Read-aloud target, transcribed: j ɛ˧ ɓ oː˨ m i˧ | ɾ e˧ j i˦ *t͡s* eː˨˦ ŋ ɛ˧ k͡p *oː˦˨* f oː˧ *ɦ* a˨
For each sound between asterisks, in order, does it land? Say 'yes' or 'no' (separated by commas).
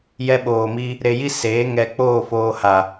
no, yes, no